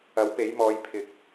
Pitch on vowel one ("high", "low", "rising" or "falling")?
rising